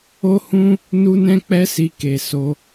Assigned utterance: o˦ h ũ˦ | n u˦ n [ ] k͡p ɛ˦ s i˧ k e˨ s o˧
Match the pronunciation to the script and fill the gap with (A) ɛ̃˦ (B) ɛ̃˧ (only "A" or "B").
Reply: A